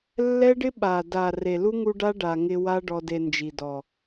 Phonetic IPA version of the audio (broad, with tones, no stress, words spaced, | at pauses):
lːɛ˦ɖɪ˦ ɓa˨da˨ re˨lu˦ŋu˧ ɖa˦ ɖa˨ŋɪ˧ wa˦ ɖɔ˧de˧nd͡ʒi˨dɔ˨